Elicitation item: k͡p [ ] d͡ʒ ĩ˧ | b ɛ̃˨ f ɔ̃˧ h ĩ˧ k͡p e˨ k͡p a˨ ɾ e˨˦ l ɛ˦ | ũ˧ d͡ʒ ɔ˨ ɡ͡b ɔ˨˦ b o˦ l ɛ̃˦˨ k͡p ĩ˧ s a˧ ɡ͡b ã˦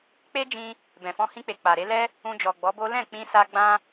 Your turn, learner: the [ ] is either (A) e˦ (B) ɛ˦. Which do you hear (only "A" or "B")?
A